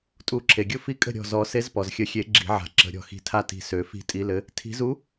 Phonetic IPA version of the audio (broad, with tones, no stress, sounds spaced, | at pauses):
tʼ u˨˩˦ ǁʰ e˩ ɡʲ ʊ˥˩ f i˧˥ kʼ ə̤˥˩ ɾʲ ɔ̤˧˩ z ɔ˨˩˦ s e˧˥ z p ɔ˩ z xʲ ə˨˩˦ xʲ e˨˩˦ ɡ͡ǁ i̤˨˩˦ ʕ a̤˨˩˦ ǁ ə̤˨˩˦ ɾʲ ɔ̤˧˩ x i̤˧˩ tʰ a˥˩ t i̤˧˩ s ø˨˩˦ f i̤˥˩ tʼ i˧˥ l ɘ˧˥ | tʰ i̤˨˩˦ z u˧˥